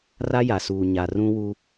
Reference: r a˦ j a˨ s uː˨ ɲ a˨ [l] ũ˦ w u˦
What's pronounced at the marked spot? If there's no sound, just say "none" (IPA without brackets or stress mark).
r